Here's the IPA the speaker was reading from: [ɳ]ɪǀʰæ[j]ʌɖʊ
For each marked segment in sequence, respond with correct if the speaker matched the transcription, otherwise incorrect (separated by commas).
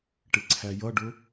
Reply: incorrect, correct